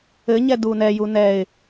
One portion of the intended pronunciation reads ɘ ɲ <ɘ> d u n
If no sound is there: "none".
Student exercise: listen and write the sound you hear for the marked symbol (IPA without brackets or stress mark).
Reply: ɛ